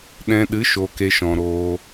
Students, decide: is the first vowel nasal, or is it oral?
nasal